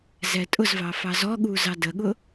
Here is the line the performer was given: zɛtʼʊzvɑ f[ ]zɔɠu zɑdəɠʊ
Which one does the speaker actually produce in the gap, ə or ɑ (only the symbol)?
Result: ɑ